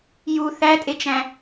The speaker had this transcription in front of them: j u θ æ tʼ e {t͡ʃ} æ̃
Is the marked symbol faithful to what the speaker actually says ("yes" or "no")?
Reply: yes